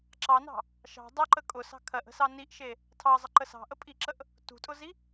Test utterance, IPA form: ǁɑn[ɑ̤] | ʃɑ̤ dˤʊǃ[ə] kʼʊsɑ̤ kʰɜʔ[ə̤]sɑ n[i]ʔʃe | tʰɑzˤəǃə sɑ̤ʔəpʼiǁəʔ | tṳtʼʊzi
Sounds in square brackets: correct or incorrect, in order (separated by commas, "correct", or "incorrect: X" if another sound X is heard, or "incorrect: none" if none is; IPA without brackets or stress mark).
correct, correct, correct, correct